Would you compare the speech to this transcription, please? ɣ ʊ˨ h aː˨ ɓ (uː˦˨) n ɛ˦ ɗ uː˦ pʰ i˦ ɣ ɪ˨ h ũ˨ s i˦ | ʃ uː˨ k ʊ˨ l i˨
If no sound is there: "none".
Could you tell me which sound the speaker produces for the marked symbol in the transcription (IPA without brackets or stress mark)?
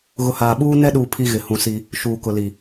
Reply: uː˦